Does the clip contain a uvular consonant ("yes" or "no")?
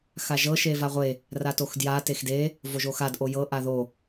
yes